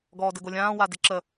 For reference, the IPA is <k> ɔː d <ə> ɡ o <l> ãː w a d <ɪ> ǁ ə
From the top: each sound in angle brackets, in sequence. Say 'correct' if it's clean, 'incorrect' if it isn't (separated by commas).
incorrect, correct, incorrect, correct